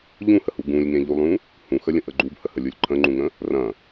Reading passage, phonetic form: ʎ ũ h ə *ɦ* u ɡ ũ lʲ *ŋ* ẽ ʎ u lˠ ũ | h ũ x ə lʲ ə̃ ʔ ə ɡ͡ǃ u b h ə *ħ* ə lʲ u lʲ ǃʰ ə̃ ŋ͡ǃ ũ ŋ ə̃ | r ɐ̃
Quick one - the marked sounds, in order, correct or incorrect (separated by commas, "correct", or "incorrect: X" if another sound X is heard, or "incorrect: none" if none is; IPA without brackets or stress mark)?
incorrect: h, correct, incorrect: h